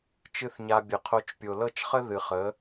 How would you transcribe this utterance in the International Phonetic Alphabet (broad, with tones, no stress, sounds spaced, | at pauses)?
t͡ʃ ɨ˦ θ ɲ a˧ bʲ ə˨ qʰ o˧ t͡ʃ pʲ o˨ l ɤ˦˨ t͡ʃ χ ə˦ ð ɨ˨ χ ə˨˦